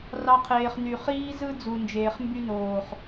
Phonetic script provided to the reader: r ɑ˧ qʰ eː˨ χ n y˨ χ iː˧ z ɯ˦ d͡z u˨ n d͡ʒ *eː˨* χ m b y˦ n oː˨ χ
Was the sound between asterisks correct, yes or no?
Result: yes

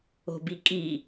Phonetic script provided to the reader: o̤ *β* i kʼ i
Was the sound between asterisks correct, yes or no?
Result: no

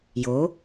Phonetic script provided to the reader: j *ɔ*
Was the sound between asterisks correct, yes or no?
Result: no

